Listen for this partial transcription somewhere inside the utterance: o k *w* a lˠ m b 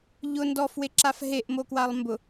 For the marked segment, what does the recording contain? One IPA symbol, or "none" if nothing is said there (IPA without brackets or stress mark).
w